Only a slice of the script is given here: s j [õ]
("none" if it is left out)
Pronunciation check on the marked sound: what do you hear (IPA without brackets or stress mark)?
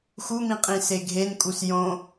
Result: õ